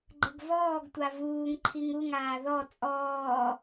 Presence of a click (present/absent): present